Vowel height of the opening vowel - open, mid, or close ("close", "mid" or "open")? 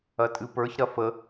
open